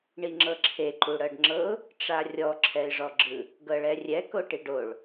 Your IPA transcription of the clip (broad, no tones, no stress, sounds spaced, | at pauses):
ɳ i ŋ͡ǁ ɤ ǁʰ e ǃ u ɽ ɤ ɖ ŋ͡ǁ ɤ ʊ̯ | ʈ͡ʂ a rʲ ɔ ǁʰ ɛ ɪ̯ ʐ ɔ ɡ͡ǁ ɯ | ɡ ɤ ɭ ɛ rʲ ɛ k o ʈ i ɖ o ɭ